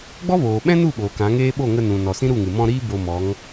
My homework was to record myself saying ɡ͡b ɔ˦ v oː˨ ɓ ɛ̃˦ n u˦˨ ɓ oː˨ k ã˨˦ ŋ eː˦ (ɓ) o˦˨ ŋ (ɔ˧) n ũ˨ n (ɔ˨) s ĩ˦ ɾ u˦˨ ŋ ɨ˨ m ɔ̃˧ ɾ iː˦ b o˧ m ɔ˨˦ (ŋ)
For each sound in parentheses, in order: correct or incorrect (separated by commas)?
correct, incorrect, correct, correct